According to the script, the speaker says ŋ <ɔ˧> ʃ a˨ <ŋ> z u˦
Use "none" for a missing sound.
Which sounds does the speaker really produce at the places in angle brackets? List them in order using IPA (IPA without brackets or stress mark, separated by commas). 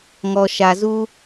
ɔ˧, none